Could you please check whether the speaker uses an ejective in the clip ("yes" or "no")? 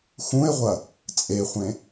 yes